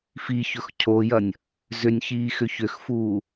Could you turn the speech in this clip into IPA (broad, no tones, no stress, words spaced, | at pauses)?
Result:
fiçɵx cʰojɐnʲ | zʏnʲçiːxʏ çʏxfuː